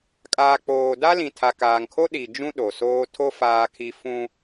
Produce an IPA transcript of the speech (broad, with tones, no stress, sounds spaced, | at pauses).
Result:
kʼ aː˨ k͡p oː˨ d a˦ l ĩ˨ tʰ a˨ k aː˨ ŋ kʰ o˦ ɗ i˨ d͡ʒ ũ˦ ɗ o˨ s oː˦ tʰ o˦ f aː˦ kʰ i˦ f ũ˦